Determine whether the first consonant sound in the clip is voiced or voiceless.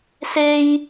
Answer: voiceless